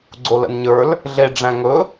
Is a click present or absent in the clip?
present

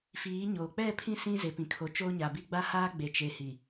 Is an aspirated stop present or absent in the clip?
present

